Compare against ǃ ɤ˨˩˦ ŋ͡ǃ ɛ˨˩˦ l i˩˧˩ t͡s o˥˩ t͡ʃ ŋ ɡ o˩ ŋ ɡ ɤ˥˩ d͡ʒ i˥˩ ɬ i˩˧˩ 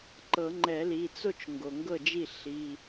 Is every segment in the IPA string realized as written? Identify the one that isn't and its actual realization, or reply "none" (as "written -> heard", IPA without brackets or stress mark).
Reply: none